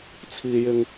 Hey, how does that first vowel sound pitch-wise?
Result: low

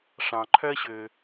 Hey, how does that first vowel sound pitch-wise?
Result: low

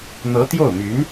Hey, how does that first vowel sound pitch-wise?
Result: rising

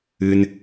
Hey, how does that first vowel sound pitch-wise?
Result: low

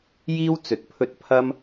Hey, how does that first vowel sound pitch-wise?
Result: high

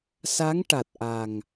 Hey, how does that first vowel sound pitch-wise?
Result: rising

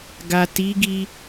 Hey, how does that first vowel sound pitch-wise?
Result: low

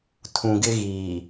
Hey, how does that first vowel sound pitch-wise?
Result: low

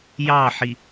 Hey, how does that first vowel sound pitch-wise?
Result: falling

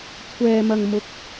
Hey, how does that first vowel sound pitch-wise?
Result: low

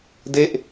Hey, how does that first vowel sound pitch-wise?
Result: falling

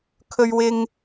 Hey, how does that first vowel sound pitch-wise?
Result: high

